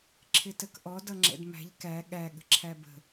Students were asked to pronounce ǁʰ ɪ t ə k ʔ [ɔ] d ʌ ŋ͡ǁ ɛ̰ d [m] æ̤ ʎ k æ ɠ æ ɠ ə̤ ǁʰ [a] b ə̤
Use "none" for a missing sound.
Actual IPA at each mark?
ɔ, m, æ

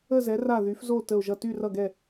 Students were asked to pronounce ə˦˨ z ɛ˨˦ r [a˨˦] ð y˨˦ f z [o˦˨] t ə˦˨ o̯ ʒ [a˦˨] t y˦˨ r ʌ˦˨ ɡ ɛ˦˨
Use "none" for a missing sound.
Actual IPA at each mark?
a˦˨, o˦˨, ʌ˦˨

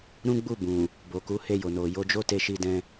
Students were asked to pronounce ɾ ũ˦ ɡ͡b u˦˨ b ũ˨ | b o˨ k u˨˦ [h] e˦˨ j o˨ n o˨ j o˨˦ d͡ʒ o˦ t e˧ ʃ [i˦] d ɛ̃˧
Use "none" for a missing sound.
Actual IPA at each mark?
h, i˧

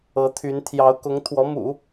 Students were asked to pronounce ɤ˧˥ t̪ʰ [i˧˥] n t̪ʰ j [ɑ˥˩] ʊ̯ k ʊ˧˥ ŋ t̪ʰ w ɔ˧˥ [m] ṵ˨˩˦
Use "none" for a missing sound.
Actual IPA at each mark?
y˧˥, ɑ˧˥, m

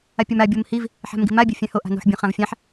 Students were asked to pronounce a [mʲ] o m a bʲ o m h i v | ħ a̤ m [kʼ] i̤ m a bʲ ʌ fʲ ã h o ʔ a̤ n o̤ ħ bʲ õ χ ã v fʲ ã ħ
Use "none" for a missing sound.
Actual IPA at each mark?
pʲ, ɡ

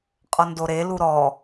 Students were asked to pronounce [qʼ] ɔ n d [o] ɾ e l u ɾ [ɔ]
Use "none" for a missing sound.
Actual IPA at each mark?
qʼ, o, ɔ

